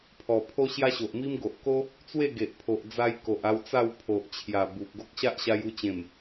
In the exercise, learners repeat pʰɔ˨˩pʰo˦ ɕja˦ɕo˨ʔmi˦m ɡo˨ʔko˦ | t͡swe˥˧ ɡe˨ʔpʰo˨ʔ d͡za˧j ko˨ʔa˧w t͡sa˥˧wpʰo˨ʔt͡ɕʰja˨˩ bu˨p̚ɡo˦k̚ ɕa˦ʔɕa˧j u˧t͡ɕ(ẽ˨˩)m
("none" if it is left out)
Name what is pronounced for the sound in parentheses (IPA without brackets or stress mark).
ẽ˨˩